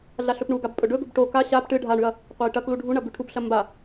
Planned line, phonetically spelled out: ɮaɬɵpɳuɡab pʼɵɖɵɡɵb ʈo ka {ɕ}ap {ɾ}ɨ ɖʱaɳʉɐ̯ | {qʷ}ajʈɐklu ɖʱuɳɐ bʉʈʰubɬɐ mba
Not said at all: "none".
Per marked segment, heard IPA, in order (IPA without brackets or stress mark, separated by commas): ɕ, ʈ, qʷ